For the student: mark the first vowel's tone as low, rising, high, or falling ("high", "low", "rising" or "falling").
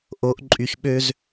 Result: rising